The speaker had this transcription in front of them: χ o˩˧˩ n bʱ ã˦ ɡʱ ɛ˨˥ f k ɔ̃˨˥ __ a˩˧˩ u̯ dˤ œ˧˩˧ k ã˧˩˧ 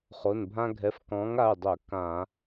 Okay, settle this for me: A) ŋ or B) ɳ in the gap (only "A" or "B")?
A